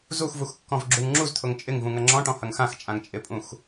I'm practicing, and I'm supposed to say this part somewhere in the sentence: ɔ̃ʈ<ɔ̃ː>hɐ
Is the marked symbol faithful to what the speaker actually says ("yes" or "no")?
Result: no